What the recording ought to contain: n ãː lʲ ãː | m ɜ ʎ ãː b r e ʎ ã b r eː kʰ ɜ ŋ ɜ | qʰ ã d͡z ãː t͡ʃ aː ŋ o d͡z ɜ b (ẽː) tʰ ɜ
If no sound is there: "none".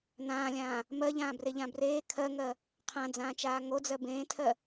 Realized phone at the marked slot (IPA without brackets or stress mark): ẽː